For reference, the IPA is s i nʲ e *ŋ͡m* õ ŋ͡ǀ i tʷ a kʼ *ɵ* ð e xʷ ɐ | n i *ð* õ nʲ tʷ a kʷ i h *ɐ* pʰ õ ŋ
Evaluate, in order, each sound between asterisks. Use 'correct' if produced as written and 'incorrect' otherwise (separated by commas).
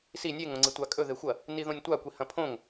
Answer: incorrect, correct, correct, incorrect